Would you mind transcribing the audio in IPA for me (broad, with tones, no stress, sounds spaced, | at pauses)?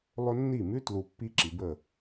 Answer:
lˠ ɵ˦ nː i˦˨ m ʉ˦ t l u˨ pː i˦ ǁ i˨ b ə˦˨